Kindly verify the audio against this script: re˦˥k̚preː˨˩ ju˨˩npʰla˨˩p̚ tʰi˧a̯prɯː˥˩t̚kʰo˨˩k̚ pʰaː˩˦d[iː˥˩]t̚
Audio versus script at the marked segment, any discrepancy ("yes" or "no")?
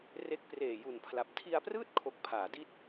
yes